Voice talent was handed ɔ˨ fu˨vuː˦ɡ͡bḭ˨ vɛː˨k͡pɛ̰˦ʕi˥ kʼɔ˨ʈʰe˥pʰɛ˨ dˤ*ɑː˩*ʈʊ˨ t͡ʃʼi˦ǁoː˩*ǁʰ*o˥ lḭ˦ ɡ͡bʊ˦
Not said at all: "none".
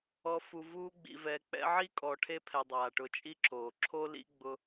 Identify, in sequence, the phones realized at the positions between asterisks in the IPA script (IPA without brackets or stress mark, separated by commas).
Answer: aː˩, ǁʰ